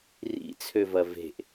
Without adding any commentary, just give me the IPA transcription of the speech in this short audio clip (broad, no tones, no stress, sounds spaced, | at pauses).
r ḭ t͡sʰ ø v ɐ v e̤ ʔ